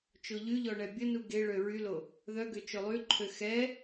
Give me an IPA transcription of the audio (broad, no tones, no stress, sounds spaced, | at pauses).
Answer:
t͡ʃ o ʎ y ʎ ɔ ɳ ɛ bʲ ə n u ɡ e ɭ ø ɹ y l o | ð œ ɡ ø t͡ʃ o lˠ y ǃʰ ø x ɛ